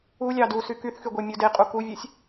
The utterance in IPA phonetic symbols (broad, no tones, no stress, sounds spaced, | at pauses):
u lʲ ɑ d u s y k y θ x y ɡʷ e mʲ u d e qʼ u k u vʲ ɛ sʲ